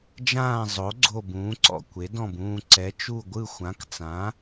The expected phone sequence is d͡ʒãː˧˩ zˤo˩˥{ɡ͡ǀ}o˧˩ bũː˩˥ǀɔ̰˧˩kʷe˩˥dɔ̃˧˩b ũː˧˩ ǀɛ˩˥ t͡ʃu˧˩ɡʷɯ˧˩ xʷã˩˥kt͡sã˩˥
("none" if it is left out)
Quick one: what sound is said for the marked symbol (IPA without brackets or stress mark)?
ɡ͡ǀ